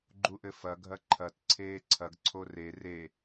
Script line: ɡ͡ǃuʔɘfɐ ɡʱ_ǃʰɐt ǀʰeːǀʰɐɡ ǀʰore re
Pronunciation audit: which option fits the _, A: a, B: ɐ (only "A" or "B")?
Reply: B